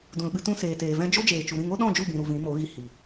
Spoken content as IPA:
d ũ˨ l ɓ ɨ˧ t ũ˧ s eː˨ t eː˨ v ɛ̃˧ d͡ʒ o˦ d͡ʒ eː˨ t͡ʃ u˨ ɾ ĩ˦˨ ŋ o˦ ɗ ɔ̃˦˨ d͡ʒ u˦˨ b ĩ˨ ɾ u˨ v ĩ˨˦ m o˨˦ ɣ i˧ h i˨

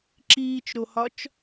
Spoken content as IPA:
ǁ iː t͡ʃ ɾ o h ɒ t͡ʃ

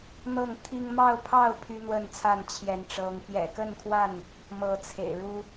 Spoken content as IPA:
n̪ ɤ˥˨ ŋ t̪ʰ i˦ ŋ m ɑ˥˨ ʊ̯ pʰ ɑ˥˨ ʊ̯ pʰ y˦ n̪ w ə˥˨ n t͡sʰ a˥˨ n t͡ɕʰ j ɛ˨˦ n ʈ͡ʂ ɤ˨˦ ŋ p j ɛ̰˨˩ k ə˥˨ n kʰ w a˥˨ n | m ɤ˨˦ t͡sʰ ḛ˨˩ ɪ̯ ɻ u˦

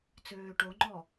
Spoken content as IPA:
t͡s øː ʈ o ŋ͡ǃ ɔ

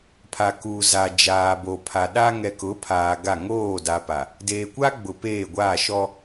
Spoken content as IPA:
pʰ a˨ k uː˨ z a˨ d͡ʒ aː˨ b o˨ pʰ a˨ ɗ a˦ ŋ ɛ˨ k ʊ˨˦ pʰ aː˨ ɡ a˦˨ ŋ oː˦˨ d a˨ p a˨ | d eː˨ kʷ a˦ ɡ͡b ʊ˨ p eː˦˨ ɡʷ aː˦˨ ʃ ɔ˦

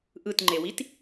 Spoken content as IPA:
ʔ ɯ t ŋ͡ǃ e w i t

